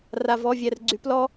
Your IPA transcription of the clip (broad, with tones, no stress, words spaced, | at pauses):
ra˧vɔ˧˥˧vʲɛ˧r ɡ͡ǀy˨˥plɔ˥